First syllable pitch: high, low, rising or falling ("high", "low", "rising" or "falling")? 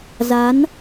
rising